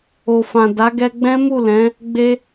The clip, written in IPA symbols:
o˨ f ã˨ d a˨˦ ɡ ɛ˧ ɡ͡b ɛ̃˦ m u˦˨ l ɛ̃˨˦ | ɡ͡b e˧

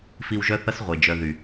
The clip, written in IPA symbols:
f i˧ w ʒ œ˦ θ ʌ˦ s ʁʷ e˨ d͡ʒ œ˧ ð y˨

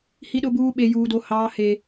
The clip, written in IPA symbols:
h i˦ ɗ ʊ˦ b uː˦ ɓ e˦ j uː˦ d o˦ h ɑː˦ h e˦

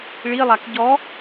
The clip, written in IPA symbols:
ɭ i lˠ a k ɟ ɔ

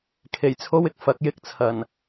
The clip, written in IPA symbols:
kʰ e˨˩ j t͡sʰ o˧ w ɪ˨ k̚ f ɐ˨˥ k̚ j ɪ˧ k̚ t͡sʰ ɐ˨˩ n

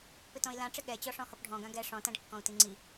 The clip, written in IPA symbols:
p ɪ t ɔ̃ i̯ l ã ʈ͡ʂ ɪ ɠ ɛ t͡ɕ ɔ ʂ ɔ̃ h ɔ p ɖʱ ɔ̃ ɡ ã ɡ ɛ ʂ ɔ̃ t ã ɖ kː ɔ̃ u̯ t i ŋ͡ǀ i

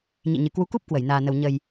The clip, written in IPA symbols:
ɲ ḭ˧˨ ɲ ɨ˨˩ k w u˨˦ k u˦˥ p̚ k w ə˧˩ j n aː˨˩ n ə˨˩ w ɲ ə˨˩ j

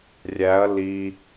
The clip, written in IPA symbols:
rʲ æ ɐ̯ l i

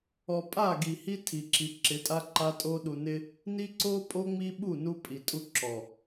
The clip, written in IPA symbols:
ɔ˨ pʼ a˦˨ ɡ i˨ h i˦ tʰ i˨ ǁ i˨ ǁ ɪ˨˦ tʼ a˦ ǃ a˦ tʼ o˦ ɗ u˨ n ɪ˦ | n i˦ ǀ o˦ pʼ o˦ ŋ͡m i˦ ɓ u˦˨ n u˦ pʼ i˨ tʼ u˦ ǁ ɔ˨

